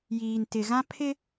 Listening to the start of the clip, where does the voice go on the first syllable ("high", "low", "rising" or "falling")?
low